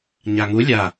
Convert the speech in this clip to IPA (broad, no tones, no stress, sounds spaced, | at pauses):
ɲ a ŋ u lʲ a